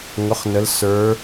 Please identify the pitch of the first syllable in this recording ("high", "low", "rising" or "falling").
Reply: rising